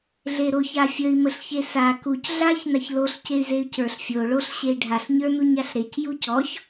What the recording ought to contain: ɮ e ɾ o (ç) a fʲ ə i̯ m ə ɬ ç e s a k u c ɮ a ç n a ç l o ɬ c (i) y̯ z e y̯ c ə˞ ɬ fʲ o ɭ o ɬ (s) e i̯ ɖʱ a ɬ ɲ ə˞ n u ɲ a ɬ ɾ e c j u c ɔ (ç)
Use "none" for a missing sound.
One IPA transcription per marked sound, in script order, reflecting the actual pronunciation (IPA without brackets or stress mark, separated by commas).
ç, e, ɕ, ç